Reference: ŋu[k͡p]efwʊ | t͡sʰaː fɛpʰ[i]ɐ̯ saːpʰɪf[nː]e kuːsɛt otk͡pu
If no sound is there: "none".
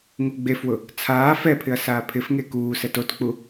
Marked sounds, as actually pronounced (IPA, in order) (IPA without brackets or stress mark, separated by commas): ɡ͡b, ɪ, ŋ